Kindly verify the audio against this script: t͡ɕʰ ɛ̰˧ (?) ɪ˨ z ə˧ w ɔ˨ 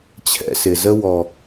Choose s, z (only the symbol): s